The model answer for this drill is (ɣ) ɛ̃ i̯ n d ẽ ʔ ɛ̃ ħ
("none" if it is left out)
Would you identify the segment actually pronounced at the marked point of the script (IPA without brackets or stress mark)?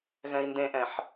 ɣ